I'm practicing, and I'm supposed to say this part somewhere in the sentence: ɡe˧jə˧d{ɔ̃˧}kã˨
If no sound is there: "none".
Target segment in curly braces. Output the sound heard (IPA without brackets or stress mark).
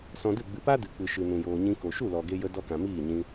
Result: ɔ˧